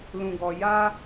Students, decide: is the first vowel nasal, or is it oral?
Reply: nasal